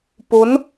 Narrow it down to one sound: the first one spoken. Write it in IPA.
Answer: p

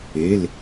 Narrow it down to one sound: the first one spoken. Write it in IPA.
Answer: e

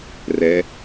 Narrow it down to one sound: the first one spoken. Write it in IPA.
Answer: r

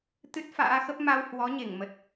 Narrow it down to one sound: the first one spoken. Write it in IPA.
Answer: t̪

